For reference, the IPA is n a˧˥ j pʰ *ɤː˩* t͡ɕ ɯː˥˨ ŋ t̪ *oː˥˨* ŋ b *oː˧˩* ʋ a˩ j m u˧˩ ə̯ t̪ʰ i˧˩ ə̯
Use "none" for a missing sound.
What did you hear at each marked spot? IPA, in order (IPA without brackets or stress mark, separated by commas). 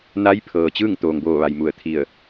ɤː˩, oː˩, oː˧˩